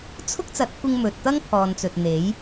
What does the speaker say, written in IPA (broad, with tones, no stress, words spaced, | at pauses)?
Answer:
t͡sʰʊ˥k̚t͡sɐ˨˥t̚kʷɪ˧ŋ mɵ˨t̚ t̪ɐ˥ŋpʰɔː˨nt͡sɵ˨t̚n̪e˨˥j